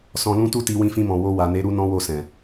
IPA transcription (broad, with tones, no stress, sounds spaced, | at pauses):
s ɔ̃˧ l ũ˦ t u˦ t i˧ w ĩ˧ f ĩ˧ m ɔ̃˨ w o˧ w a˨ n e˨˦ ɾ u˦ n ɔ̃˦ w o˦˨ s ɛ̃˨